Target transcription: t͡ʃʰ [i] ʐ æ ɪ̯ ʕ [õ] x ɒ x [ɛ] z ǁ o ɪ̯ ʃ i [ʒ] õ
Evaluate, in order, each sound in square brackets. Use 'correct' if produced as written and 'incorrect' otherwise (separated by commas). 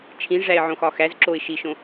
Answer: incorrect, correct, incorrect, incorrect